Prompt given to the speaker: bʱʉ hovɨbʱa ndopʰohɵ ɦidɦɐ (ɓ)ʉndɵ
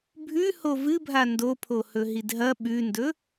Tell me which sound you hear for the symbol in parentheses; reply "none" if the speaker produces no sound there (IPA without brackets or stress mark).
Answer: ɓ